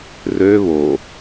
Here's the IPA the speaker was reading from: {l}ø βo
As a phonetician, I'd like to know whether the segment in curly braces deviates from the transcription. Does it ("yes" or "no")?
yes